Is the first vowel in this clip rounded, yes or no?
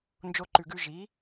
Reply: yes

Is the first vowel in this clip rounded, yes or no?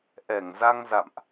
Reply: no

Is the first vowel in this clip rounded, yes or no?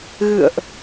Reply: no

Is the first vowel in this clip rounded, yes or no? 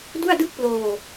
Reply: yes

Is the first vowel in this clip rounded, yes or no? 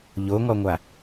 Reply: yes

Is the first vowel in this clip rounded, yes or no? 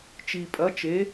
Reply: no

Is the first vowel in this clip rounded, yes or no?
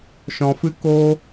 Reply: yes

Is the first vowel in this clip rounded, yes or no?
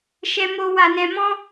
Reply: no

